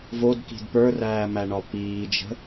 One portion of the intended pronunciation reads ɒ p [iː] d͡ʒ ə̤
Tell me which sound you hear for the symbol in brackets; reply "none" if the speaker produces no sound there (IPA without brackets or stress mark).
iː